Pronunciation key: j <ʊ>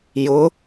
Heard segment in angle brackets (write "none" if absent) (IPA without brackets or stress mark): ʊ